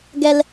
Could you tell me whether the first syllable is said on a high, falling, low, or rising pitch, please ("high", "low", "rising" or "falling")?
low